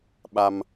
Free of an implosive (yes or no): no